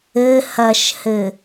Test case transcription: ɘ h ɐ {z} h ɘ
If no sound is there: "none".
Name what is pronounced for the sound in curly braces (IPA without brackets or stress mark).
ʃ